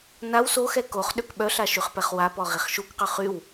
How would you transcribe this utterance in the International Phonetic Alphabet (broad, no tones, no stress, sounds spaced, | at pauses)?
n a w s o x ɛ k o χ ɗ ø k ɓ œ ɬ a ʃ y χ p ɛ χ w a p ɔ ʁ i χ ʃ u k q ø χ y w